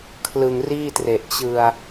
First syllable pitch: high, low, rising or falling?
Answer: low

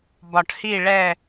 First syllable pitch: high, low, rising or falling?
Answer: low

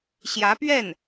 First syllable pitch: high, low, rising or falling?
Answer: rising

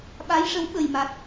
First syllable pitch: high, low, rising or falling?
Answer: rising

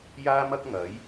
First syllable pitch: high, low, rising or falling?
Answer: high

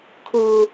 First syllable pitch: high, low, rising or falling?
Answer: low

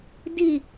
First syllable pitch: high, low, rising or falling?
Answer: falling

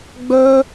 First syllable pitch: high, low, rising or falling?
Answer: high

